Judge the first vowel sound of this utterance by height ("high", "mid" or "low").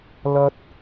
low